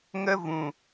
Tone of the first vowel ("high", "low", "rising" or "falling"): high